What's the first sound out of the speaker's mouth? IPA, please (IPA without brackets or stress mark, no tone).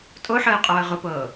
tʼ